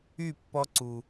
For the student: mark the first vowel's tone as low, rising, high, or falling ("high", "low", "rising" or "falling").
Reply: falling